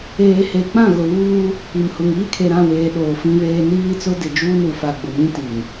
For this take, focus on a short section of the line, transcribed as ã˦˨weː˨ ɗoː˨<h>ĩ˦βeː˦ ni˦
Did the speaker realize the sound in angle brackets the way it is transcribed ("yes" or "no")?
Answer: no